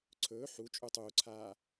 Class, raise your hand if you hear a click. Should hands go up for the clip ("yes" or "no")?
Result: yes